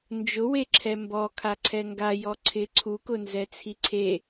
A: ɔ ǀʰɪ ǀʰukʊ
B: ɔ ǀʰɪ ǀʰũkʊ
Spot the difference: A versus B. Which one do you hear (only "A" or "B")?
A